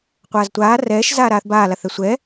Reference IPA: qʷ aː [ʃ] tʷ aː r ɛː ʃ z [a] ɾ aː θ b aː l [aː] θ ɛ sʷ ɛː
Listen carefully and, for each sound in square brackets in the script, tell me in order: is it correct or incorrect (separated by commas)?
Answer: incorrect, incorrect, incorrect